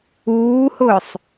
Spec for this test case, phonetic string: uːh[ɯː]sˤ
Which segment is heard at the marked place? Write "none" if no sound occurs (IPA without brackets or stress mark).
ʊː